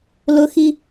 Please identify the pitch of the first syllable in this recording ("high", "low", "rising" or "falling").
high